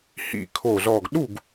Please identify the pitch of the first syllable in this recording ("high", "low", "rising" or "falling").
low